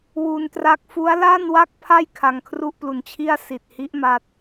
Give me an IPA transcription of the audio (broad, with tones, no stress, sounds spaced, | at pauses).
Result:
w u˧ n t r a˦˥ k̚ f u˦˥ a̯ l a˥˩ n w a˥˩ k̚ pʰ a˥˩ j kʰ a˧ ŋ kʰ r u˥˩ ʔ p l u˧ n t͡ɕʰ i˥˩ a̯ s i˨˩ t̚ h i˦˥ ʔ m a˥˩ t̚